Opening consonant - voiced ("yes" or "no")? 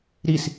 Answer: yes